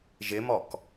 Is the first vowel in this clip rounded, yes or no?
no